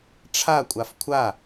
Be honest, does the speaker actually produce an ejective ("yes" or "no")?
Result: yes